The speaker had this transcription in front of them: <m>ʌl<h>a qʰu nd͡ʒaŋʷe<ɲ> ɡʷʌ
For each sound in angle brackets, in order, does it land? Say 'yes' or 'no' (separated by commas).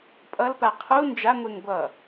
no, no, no